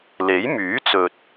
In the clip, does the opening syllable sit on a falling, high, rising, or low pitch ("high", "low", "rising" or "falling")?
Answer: rising